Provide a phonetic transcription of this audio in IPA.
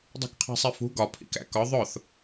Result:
dˤṳkqʰæ̤sˤifṳ ɡɒ pʰḭkæ̰kɒ ðˤʊθ

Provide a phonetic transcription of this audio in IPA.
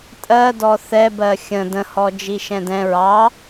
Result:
tʼɜdɔ θɛbɜ xʲə̃ də̃hɔ d͡ʒiʃɛ̃dɛ̃ ɹɑ

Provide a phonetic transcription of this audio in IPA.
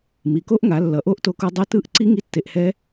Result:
mi˩˧ko˦˥ʔŋa˩˧ lːʌ˩˧ʔo˦˥ʔto˧ku˧ dˤe˦˥tɯ˦˥ʔ ǀi˦˥ ŋi˦˥tːe˧ʔhɛ˦˥

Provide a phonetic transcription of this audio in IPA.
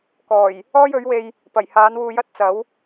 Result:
kɔː˨˩j | ɔː˥jɵ˨˥ɥwe˧j | pɐ˨˩jhaː˨˥nwuː˧jɐ˥t̚ t͡sɐ˨˥w

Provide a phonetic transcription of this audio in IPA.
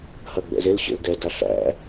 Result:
hɐɡ͡bɛ̰zelɕḛl dɛda ɬæ̰

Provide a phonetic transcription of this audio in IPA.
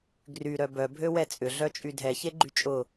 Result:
ɡry ɾœbœ bʱøwɛt͡sʼʏ ɮœt͡ʃʼydʱɛ çeɡ͡ǃyt͡ʃʼʊ

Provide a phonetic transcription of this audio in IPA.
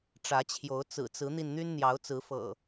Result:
ʈ͡ʂä˨˦t͡ɕʰjo˨˦ʊ̯ t͡sɹ̩˨˩t͡sɹ̩˨˦n̪i˧n n̪y˦nn̪jɑ˨˦ʊ̯t͡sɹ̩˨˦fɤ̰˨˩

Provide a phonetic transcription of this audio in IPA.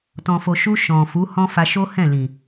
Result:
tɔ̃˨fo˨ʃu˧ ʃɔ̃˨fu˨˦hɔ̃˦fa˧ ʃo˦hɛ̃˦˨lĩ˨

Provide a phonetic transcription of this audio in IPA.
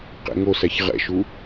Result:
qḛŋosæç ʁɛ̰ʃu

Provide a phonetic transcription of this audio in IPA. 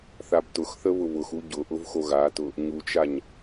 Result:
θabtʊxθə βʊβʊxu ɟʊʔʊv xoɣatʊ | ɲut͡ʃaɲ

